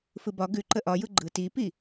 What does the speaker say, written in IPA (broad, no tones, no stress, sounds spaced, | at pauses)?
f ɯ b ɒ ɡ ʉ ǃ ə ʔ ɒ j ɯ ɡ͡ǃ ɯ t i p i